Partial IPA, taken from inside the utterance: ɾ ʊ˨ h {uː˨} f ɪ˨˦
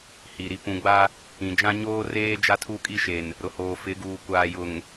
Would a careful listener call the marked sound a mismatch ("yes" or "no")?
yes